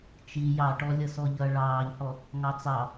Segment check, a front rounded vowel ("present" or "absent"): absent